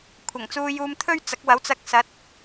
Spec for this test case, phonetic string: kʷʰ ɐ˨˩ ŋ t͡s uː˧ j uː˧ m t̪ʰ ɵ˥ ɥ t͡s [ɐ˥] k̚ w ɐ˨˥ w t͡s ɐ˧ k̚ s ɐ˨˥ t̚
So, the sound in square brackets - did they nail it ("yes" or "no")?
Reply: no